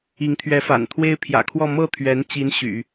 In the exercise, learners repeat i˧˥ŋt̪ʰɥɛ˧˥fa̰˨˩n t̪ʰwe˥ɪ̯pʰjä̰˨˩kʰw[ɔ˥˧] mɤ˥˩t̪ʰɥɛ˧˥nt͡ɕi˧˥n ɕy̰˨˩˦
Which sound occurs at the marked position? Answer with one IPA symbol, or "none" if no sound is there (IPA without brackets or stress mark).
ɔ˥˧